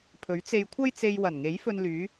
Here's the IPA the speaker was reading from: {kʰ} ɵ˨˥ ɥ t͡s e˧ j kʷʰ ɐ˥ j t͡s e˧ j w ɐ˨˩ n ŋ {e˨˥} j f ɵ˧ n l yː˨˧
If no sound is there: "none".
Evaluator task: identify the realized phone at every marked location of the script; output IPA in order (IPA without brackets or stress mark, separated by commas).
pʰ, e˨˥